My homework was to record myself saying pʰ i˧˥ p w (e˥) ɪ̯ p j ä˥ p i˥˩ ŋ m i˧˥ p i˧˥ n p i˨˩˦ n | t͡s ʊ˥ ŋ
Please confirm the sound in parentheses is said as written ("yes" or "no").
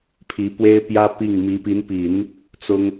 yes